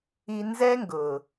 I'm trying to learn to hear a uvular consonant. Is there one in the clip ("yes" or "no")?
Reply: no